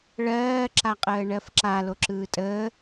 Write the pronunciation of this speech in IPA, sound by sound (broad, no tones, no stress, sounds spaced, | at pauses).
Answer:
ɭ ɜː ǁ a qʼ əː ɳ ɜ f ǁ a l o ǁ ɯː tʼ əː